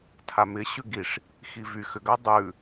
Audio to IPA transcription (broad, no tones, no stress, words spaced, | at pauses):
tʰamɪ ɕʉɡiʂ | xivy xʏɡa dˤʉ